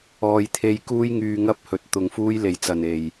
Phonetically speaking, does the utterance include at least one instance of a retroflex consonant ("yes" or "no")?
no